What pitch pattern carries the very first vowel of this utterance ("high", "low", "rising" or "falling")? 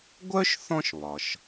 high